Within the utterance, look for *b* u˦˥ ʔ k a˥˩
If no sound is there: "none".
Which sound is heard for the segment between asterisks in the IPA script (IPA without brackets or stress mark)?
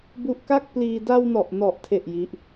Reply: b